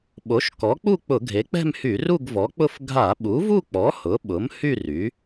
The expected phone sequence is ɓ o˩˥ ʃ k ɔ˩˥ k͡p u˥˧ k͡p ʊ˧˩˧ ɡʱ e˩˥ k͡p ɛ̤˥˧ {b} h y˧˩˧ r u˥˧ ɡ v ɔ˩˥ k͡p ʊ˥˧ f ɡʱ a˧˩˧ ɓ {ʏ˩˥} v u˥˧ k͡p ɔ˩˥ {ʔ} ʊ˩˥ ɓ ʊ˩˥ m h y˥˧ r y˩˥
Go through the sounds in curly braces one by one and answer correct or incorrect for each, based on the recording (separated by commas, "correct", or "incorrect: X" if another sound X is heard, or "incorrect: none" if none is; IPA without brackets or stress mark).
incorrect: m, incorrect: u˩˥, incorrect: h